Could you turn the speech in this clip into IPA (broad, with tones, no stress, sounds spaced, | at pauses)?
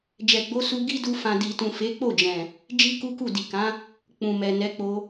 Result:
d͡ʒ ɛ˨ ɡ͡b o˨˦ s u˧ ɡ i˦ d u˧ f ã˨ d i˨ t ũ˨ f e˨˦ k͡p o˦˨ d͡ʒ ɛ̃˨ | d͡ʒ i˦ k u˦ k u˦˨ d i˨ k ã˨˦ | k͡p ũ˨ m ɛ˨ n ɛ˨˦ k͡p o˧